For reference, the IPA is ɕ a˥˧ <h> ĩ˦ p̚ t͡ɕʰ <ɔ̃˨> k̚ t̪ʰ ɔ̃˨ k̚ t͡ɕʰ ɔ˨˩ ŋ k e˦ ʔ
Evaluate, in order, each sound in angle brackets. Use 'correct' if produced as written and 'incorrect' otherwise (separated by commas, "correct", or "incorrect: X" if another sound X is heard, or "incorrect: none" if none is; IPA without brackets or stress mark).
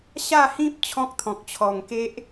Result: correct, incorrect: ɔ̃˦